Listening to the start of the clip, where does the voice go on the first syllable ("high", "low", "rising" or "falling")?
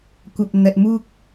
low